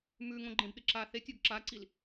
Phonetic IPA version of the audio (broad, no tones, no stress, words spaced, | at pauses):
mʉŋõɡ͡ǃẽbɗɨ ǁa θetʲoɡ ǁaǀil